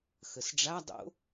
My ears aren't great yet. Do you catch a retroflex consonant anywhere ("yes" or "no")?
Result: yes